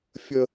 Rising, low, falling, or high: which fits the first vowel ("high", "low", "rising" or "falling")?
high